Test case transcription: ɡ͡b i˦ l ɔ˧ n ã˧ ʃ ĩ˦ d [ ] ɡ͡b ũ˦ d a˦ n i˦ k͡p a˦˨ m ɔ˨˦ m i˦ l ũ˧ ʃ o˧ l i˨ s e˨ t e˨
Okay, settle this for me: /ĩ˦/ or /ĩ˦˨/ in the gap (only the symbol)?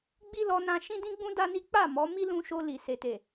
ĩ˦